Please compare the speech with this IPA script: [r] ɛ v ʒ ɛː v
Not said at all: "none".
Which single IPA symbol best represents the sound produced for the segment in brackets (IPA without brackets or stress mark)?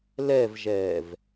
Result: l